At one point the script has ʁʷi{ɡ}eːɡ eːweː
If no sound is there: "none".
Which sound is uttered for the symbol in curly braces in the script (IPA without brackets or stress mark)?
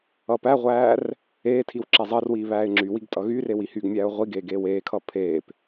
ɡ